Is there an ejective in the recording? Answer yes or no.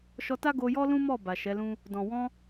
no